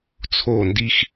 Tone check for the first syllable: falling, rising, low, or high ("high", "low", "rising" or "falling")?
falling